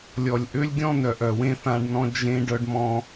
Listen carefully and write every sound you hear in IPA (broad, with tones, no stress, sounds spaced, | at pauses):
lʲ ɔ˨ lʲ ʔ ø˦ lʲ ɡʲ ɔ̃˦ n œ˨ ʔ œ˨ w ẽ˦ θ ã˧ ɖ n ɔ̃˧ d͡ʒ ẽ˦ ɖ œ˦ ɖ m ɔ̃˦